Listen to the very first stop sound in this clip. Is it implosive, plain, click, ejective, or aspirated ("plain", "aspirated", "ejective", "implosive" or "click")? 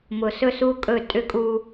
ejective